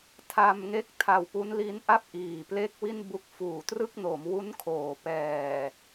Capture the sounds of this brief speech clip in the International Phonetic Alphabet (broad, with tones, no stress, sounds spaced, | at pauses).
tʰ a˧ m ŋ e˦˥ k̚ tʰ a˧ w p u˦˥ n l i˦˥ n ʔ a˥˩ p̚ ʔ iː˨˩ p l e˥˩ k̚ w i˥˩ n b u˦˥ k̚ f uː˨˩ t r ɯ˥˩ k̚ n o˩˦ m w u˦˥ n kʰ oː˨˩ p ɛː˨˩